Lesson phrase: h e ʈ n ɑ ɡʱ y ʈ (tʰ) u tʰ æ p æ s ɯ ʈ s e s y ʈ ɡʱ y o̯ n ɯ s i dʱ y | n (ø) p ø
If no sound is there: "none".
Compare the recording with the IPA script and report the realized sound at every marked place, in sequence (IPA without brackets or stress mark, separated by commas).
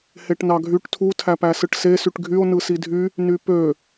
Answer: tʰ, y